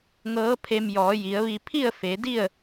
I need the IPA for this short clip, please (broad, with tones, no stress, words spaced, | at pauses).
ŋɤː˧˥pʰe˧m jɔː˩˧ji˩˧ə̯ʋi˧ pʰi˥˨ə̯fe˩˧di˥˨ə̯